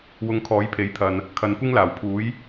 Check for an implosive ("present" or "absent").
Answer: absent